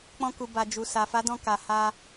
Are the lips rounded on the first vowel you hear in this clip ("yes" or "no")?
yes